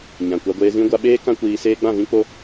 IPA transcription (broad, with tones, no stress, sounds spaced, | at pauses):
ɲ ã˨ kʷ a˧ ɡʷ eː˧ z ĩ˦ ɡʷ a˧ ɓ eː˦ k ã˦ kʷ iː˧ s eː˦ ɡ͡b ã˦˨ v ĩ˦ k͡p o˦